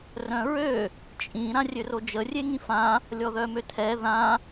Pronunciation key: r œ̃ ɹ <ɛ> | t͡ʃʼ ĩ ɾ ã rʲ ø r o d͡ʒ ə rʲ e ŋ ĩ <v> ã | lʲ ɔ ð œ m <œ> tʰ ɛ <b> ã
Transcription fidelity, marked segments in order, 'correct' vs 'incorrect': incorrect, incorrect, incorrect, incorrect

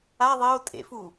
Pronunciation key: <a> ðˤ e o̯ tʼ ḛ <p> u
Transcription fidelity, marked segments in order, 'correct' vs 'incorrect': correct, incorrect

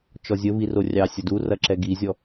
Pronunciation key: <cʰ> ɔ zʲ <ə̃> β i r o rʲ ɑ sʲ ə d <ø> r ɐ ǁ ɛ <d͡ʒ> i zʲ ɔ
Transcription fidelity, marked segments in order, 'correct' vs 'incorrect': incorrect, incorrect, incorrect, incorrect

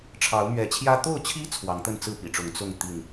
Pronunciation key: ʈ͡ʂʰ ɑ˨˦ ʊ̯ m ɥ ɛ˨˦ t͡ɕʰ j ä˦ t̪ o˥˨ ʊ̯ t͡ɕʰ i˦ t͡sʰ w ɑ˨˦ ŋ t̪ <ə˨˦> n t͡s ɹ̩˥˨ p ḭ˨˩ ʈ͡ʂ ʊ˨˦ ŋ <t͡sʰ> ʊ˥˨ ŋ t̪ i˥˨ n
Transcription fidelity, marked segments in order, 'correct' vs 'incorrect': incorrect, incorrect

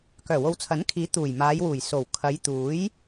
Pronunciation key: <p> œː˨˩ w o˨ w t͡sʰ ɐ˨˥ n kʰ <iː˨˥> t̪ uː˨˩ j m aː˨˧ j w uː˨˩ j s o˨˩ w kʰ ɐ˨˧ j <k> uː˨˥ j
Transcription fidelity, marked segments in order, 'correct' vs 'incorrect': incorrect, correct, incorrect

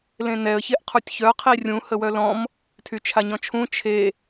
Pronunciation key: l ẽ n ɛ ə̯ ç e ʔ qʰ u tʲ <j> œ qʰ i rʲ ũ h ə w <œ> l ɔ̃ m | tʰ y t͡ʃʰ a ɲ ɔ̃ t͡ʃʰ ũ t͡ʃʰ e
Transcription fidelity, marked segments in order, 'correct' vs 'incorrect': incorrect, correct

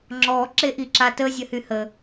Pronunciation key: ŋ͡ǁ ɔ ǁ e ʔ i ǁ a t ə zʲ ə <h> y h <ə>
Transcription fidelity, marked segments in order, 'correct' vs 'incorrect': correct, correct

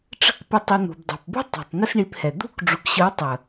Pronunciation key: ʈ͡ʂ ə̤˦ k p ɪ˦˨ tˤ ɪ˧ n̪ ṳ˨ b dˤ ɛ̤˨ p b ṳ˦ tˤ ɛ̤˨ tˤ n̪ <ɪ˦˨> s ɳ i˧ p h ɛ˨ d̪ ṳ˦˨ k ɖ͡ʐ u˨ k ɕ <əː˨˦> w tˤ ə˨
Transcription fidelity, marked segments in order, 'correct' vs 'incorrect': incorrect, incorrect

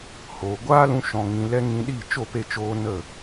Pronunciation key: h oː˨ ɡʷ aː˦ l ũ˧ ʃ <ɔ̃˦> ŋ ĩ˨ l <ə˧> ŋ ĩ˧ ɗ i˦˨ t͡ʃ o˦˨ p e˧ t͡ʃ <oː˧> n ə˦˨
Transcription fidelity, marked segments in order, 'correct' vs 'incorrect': incorrect, incorrect, correct

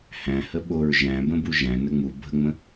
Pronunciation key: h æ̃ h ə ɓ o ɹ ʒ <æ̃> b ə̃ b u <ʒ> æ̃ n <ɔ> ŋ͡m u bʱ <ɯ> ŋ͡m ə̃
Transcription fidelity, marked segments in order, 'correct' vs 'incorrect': correct, correct, incorrect, incorrect

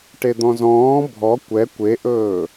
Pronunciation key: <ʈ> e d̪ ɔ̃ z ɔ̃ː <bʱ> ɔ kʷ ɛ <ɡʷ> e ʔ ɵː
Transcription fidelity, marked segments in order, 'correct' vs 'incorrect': correct, correct, incorrect

